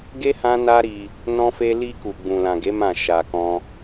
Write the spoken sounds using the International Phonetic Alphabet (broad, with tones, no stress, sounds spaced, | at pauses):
ɡ e˦ h ã˦ n a˦ ɾ i˧ | n ɔ̃˦ f e˦ l i˧ k u˨ ɡ͡b ũ˨ l ã˨ ɡ e˨˦ m ã˦˨ ʃ a˧ k ɔ̃˦